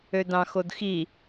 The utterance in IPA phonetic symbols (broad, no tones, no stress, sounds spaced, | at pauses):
ø d ɑ̃ x o d x i